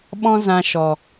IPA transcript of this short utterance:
ɓ ɔ̃˦ z ã˧ ʃ ɔ˨

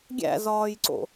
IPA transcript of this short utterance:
ɡʲ æ̰ z ɒː j ǀ o̰

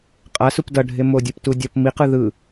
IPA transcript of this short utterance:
qʼ a s u p d ʌ ɖʱ e m o dʲ ɯ p t u dʲ ʌ p m i q ɯ ð ɯ

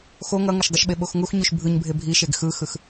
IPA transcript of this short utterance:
x o ŋ ʌ ŋ ʌ ʃ dˤ ɯ ʃ ɓ e ɓ o x ŋ u x ɲ u ʃ bʱ ɯ ɲ bʱ e bʱ i ʃ e ɡ x ɯ x ɯ x

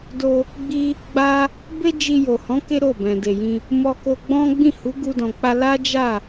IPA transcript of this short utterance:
d o˧ | ɡ͡b i˦ | ɡ͡b a˦ | b e˦ d͡ʒ i˧ j o˨ h ɔ̃˨˦ k e˦ ɾ o˦˨ b ɛ̃˨ d e˨ j ĩ˧ | m ɔ˧ k o˧ ɡ͡b ɔ̃˦ ɡ͡b ĩ˦˨ h u˨˦ ɡ u˧ d ɔ̃˨ k͡p a˧ l a˦ d͡ʒ a˦˨

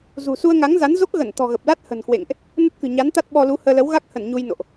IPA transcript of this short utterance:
z ṳ˨˩ s u˧ ə̯ ŋ a˨˦ ŋ z a˨˦ n z o˦˥ k̚ ɣ ə˧˩ n t̪ ɔ̤˨˩ ɣ ə˨˩ p̚ l a˦˥ t̚ h ə̤˨˩ n k w ḛ˧˨ ŋ ʔ | n ə˦˥ t̚ k ɨ̤˨˩ ɲ a˨˦ n t̪ a˦˥ t̚ ɓ ɔ˧ l u˨˦ h əː˧ l ə˨˦ w ɣ a˦˥ k̚ h ə˧˩ n ɲ u˧ j n o̰˧˨ ʔ

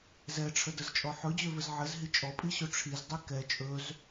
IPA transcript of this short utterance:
z ɛ ʈ͡ʂʰ ə d ə z t͡ʃʼ ɔ ħ ɵ d͡ʑ ø v ɘ z ʕ ɘ z ɦ i t͡ʃʼ ɔ pʼ i ɕ ɵ ʈ͡ʂʰ i z dˤ i k ɛ t͡ʃʼ ɵ z

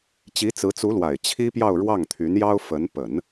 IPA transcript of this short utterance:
t͡ɕ i˧˥ t͡s ɹ̩˧˥ t͡s u˧˥ l w a˨˩ ɪ̯ t͡ɕʰ i˥ p j ɑ˥˧ ʊ̯ ɻ w ɑ˥˩ ŋ t̪ʰ y˧˥ n j ɑ˥ ʊ̯ f ə˧˥ n p ə˨˩˦ n

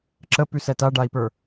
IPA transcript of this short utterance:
ǁ ə p ʉ s ɛ t a ɖ a i̯ p ə˞

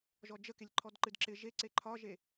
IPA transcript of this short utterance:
ʒ ɔ d͡ʒ ə k e lʲ ǃʰ ɔ d ǃ ɨ d ǁ ɪ ʒ e ǀ e ǃʰ ɒ ʒ e

